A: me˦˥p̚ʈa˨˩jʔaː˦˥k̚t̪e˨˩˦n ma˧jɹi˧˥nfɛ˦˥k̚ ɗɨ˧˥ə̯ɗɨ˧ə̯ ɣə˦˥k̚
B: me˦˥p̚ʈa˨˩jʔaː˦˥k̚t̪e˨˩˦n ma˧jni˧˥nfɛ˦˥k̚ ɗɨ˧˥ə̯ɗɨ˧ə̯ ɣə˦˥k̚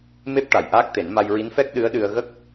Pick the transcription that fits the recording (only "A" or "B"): A